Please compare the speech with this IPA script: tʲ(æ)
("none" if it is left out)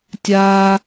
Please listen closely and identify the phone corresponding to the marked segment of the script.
a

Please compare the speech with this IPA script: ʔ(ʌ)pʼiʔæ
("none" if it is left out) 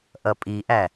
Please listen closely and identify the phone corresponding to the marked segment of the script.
ʌ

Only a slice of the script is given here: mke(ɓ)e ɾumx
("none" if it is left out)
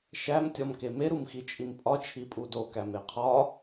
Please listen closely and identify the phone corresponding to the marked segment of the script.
m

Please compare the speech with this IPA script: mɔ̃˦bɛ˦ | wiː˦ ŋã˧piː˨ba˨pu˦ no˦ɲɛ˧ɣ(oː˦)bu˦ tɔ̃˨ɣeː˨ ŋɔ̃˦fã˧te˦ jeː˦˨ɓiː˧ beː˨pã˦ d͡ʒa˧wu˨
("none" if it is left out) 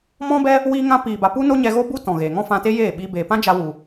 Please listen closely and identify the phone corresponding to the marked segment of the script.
o˦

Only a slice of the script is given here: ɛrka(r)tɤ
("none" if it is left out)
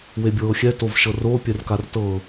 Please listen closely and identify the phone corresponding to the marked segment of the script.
r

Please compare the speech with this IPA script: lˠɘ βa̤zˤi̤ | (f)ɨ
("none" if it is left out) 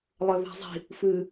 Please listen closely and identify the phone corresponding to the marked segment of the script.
f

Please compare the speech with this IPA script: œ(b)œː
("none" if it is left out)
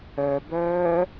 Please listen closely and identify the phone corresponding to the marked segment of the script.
b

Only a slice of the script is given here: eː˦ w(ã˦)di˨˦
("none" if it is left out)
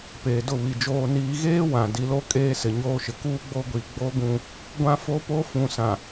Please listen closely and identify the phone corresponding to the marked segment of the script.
ã˨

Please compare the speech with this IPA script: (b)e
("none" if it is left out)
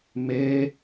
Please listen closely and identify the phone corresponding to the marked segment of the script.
m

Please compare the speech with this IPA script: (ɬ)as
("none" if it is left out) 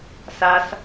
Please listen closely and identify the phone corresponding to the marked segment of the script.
s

